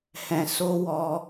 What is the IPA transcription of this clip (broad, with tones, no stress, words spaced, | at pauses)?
hɛ̃˧so˦ wɔ˦